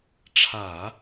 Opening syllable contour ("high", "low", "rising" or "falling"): low